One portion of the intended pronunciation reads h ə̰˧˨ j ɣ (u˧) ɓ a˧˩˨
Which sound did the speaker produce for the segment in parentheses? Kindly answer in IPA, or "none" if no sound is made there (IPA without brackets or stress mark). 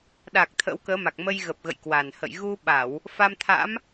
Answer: u˧